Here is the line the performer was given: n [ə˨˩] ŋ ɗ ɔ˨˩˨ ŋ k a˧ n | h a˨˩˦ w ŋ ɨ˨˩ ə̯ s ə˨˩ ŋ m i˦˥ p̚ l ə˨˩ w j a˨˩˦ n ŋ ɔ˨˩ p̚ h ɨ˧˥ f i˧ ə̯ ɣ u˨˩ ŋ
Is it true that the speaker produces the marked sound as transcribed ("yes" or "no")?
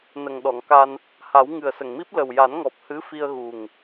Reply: yes